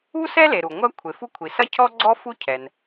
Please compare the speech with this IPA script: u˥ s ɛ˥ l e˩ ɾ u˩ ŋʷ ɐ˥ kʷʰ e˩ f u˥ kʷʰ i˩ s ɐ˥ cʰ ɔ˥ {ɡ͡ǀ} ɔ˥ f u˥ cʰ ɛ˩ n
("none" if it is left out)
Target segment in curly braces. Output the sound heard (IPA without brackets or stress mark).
ɡ͡ǀ